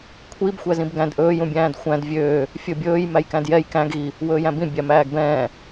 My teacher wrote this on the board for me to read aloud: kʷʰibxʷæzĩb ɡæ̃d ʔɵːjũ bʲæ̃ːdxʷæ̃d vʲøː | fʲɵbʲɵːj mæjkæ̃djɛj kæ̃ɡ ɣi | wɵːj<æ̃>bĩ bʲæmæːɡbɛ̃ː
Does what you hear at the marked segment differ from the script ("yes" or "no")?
no